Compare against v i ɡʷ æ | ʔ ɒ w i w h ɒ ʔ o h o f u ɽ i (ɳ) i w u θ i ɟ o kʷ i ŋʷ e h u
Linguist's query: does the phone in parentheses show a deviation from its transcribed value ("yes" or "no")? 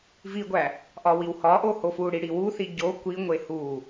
yes